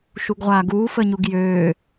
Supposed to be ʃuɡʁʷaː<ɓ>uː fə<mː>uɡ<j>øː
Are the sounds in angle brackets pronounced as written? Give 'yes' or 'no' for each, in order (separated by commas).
no, no, yes